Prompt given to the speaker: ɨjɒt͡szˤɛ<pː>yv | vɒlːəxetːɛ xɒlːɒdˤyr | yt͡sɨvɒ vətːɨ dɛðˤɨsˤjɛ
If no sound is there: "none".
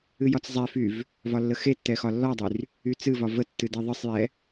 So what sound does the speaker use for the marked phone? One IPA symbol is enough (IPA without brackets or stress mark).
f